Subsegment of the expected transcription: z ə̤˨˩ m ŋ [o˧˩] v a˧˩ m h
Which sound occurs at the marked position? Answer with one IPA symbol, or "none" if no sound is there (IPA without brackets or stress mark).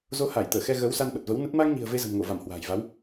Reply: o˧˩